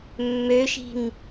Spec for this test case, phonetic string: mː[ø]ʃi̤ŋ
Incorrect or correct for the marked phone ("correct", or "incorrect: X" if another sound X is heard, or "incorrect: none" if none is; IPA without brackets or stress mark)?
correct